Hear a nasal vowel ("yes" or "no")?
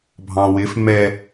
yes